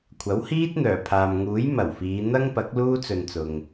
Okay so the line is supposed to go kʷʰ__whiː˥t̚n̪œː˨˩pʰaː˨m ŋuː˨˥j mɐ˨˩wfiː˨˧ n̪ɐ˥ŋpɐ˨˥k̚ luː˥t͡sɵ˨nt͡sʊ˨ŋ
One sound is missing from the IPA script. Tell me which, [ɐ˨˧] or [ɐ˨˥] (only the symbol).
ɐ˨˥